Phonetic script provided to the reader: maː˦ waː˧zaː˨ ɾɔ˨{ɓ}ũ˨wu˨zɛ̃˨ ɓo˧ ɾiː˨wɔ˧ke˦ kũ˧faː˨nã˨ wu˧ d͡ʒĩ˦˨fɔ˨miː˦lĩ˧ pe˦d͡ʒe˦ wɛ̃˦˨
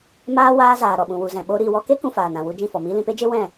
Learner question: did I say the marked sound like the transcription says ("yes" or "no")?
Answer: yes